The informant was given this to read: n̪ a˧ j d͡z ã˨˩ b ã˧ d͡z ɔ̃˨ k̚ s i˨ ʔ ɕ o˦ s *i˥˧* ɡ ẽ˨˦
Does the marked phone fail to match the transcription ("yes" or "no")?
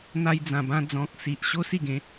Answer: no